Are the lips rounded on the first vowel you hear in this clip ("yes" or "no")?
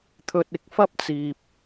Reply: yes